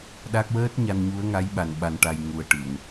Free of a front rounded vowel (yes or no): yes